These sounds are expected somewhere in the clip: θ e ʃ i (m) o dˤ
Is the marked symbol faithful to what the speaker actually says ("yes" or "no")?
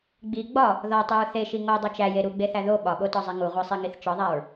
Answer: no